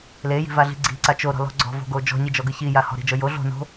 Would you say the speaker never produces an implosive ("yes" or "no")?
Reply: yes